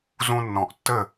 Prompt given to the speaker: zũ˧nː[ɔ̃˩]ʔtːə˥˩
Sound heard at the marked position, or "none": ɔ̃˩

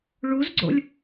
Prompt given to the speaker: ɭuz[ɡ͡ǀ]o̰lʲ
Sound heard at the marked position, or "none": ɡ͡ǀ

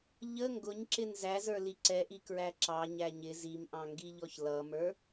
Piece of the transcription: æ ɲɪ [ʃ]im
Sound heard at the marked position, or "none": z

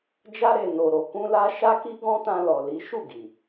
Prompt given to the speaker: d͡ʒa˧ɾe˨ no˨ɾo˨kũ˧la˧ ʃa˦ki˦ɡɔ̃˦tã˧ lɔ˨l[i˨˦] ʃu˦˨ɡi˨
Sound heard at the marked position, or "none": i˨˦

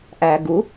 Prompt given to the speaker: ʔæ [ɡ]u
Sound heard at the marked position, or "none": ɡ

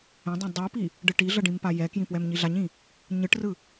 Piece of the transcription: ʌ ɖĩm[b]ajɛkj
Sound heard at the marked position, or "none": p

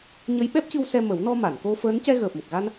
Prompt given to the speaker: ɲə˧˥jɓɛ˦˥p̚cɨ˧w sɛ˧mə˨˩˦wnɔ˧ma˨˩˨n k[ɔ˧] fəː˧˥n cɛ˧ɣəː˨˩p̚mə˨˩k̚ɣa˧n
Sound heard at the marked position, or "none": o˧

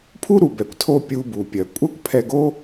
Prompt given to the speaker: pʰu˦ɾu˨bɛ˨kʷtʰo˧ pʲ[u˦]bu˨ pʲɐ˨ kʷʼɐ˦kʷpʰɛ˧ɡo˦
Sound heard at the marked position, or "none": u˧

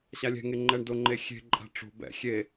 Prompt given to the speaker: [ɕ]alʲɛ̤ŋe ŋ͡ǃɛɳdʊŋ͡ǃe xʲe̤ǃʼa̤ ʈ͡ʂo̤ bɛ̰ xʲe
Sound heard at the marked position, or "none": ɕ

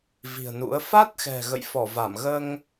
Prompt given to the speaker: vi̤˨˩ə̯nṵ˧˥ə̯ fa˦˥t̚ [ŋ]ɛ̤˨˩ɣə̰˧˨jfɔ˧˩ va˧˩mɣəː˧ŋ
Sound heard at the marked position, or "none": x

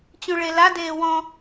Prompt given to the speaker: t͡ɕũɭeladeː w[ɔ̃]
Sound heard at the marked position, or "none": ɔ̃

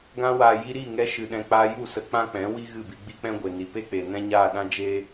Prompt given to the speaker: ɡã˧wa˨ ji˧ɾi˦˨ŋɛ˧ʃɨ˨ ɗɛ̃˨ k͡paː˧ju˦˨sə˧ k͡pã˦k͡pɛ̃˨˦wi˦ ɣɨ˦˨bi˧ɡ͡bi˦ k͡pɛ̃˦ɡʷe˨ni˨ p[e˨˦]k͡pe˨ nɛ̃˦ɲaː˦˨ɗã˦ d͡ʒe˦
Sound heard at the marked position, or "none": e˦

